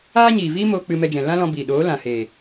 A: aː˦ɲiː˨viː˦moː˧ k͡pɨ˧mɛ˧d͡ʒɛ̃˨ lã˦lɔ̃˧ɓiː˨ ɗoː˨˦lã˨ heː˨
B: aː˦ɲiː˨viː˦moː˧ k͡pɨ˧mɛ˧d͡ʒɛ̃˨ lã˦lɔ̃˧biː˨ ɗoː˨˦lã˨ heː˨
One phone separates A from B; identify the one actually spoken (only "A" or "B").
B